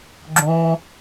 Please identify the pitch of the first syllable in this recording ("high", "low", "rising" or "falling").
low